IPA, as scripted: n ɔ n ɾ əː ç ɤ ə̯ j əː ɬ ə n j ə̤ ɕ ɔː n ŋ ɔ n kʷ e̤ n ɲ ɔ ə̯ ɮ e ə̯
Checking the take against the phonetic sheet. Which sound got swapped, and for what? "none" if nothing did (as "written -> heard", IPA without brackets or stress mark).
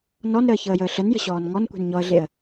none